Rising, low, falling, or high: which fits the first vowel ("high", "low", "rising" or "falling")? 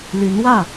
rising